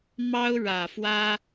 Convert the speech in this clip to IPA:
m ɑ˥ ʊ̯ ɻ ä˨˩ f w ä˥

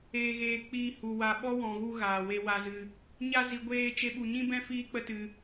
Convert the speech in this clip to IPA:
eː˨ ɣ eː˨ k͡p iː˧ h u˨ w a˨ ɓ ɔ˦ w ɔ̃˨ ɣ u˧ ɣ aː˨ w e˧ w a˧ z ɨ˧ | ɲ a˧ z i˨ ɡʷ eː˧ t͡ʃ e˦ ɓ u˧ ɲ ĩ˦ b ɛ̃˦ f iː˦ k͡p ə˦ t ɨ˧

